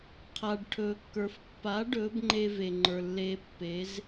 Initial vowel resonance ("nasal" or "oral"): oral